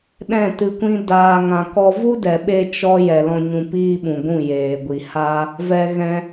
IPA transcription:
ɗ ɛ̃˦˨ t ɨ˧ kʷ ĩ˦ d aː˧ ŋ ã˧ k ɔ˦ v u˦ d ɛ˨ ɓ e˧ t͡ʃ ɔ˦ j ɛ˨ l ɔ̃˧ ɲ ũ˧ p iː˦ ɓ ũ˨ ɡʷ ũ˦˨ j eː˨ ɡʷ i˨ h a˦ | v ɛ˧ ɣ ɛ̃˧

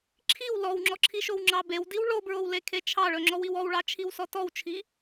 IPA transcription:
ǁʰ i w l ɔ w ŋ͡ǁ ɔ ǁʰ i ʃ o w ŋ͡ǁ ɑ b e w d i w ɭ o b ɹ o w l e kʰ e t͡ʃʰ ɑ ɭ ɵ ŋ͡ǁ ɔ w i w ɔ w ɭ ɑ t͡ʃʰ i w s ɔ t ɔ w t͡ʃʰ i

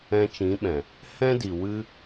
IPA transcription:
ɛ̃˧ t͡ʃ ĩ˨˦ ɓ ɛ̃˨ | h ɛ̃˦ d i˨ w ɨ˦

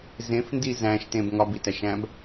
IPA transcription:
z ẽ f n d i z æ̃ ʃ t ẽ b ŋ ɒ b i t æ ʃ æ̃ b

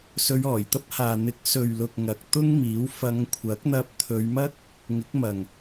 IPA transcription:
s ɵ˧ ɥ ɔː˨˩ j t̪ ɐ˥ p̚ h aː˨ n̪ ɪ˨˥ k̚ s ɵ˨ ɥ l ʊ˨ k̚ ŋ ɐ˨ k̚ t̪ ʊ˥ ŋ m iː˨˥ w f ɐ˨˧ ŋ kʷʰ ɐ˨˥ k̚ n̪ ɐ˧ p̚ t̪ʰ ɵ˨˧ ɥ m ɐ˥ k̚ | ŋ ɪ˨˥ k̚ m ɐ˨ ŋ

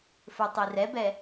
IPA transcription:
f ə˞ tˤ i r ɛ b ɛ

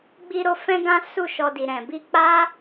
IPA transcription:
ɡ͡b i˧ ɾ o˧ f ɛ̃˦ ɡ ã˦ s u˦˨ ʃ ɔ˧ d i˨ ɾ ɛ̃˨ b i˧ k͡p a˦

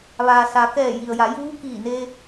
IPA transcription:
ʋ aː˩ s a˩˧ k ɛː˧˩ j i˩ ə̯ j a˩˧ j uː˧˥ k iː˧˩ n e˧

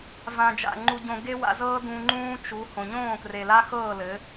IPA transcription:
v ã˨ d͡ʒ a̰˨ ŋ͡ǃ u˧ ɟ õ˧ ɡ e˦ w a̰˧ z ɤː˦ d ũ˧ ŋ͡ǃ ũː˦ t͡ʃ u˨˦ h õ˨ ɲ õː˦˨ k r e˨ l a˦ x ɤː˦˨ l ɘ˨˦

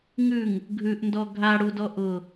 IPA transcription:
ŋ ʉ ŋ | ɡʱ ʉ ʔ n d ɔ ɡʱ a ɽ u d ɔ ʔ ʊ

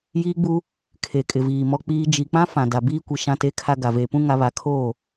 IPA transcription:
j iː˦ ɡ͡b u˦ | kʰ e˨ kʼ ɪ˨ v iː˨ m ɔ˦ k͡p iː˦ d͡ʒ i˨ k͡p ã˦ f ã˨ d a˨ b iː˦ kʷ i˨ ʃ ã˦ t e˦ kʰ a˦ ɡ a˨ v eː˨ p ũ˦ ŋ a˦ β a˦ kʰ oː˦˨

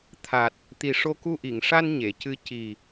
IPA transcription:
t̪ʰ a˨˩ t̚ | t̪ i˨˩ ʂ o˧ k u˧ ʔ i˨˩˨ ŋ ʂ a˧ n ɲ e˨˩˨ c ɨ˧˥ c i˨˩

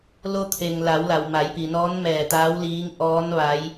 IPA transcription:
l o˧ t̪ʰ e˩ ŋ l a˩˧ w l a˩ w m a˩˧ j p i˩ n ɔː˧˥ n m ɛː˧˩ t̪ aː˧˥ w l iː˧˥ ŋ ʔ ɔː˧˥ n ʋ a˧˥ j

